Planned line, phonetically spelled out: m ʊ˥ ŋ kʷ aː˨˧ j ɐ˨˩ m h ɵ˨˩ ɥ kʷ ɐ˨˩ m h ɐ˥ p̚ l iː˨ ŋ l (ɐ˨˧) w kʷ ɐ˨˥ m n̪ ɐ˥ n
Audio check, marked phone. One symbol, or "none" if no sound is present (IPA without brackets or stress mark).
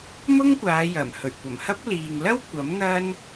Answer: ɐ˥